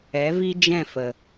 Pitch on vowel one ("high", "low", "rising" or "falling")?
rising